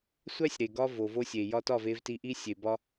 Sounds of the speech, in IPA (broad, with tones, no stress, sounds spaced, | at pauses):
sʷ æ˦ sʲ ɾ e˨ ɡ ɒ˧ v o˨ v o˧ sʲ e˨ j ɒ˧ t ɒ˦˨ v e˧ v t i˧ ʔ i˧ sʲ e˨ b ɒ˧